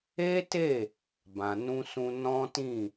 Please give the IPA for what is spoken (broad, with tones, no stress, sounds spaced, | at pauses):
e˦ t e˦˨ | b ã˨ n ũ˧ s ũ˧ n ɔ̃˦ t ĩ˦˨